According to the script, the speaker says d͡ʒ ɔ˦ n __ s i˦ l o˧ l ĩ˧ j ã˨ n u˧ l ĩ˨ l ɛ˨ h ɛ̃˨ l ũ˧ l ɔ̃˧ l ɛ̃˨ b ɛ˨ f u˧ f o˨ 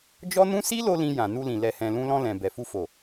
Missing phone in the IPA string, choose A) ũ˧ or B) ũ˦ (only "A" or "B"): B